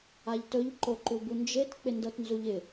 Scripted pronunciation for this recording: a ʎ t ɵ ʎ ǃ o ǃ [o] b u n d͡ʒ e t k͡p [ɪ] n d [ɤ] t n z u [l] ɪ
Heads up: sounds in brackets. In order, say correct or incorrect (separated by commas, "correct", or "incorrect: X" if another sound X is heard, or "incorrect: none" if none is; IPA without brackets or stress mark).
incorrect: u, correct, correct, incorrect: ʎ